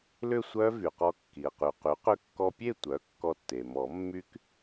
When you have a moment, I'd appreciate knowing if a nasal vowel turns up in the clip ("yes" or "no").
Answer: no